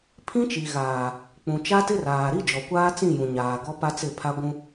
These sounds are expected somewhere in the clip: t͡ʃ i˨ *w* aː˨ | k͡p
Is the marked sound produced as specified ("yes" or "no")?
no